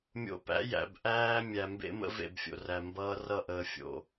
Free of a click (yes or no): yes